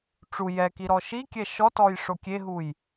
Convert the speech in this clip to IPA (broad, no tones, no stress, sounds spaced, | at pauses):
ʈ͡ʂ u j ɛ k i ɾ ɔ ʃ i kʲ ɛ ʃ ɔ t ɔ j ʂ o kʲ e ɦ u j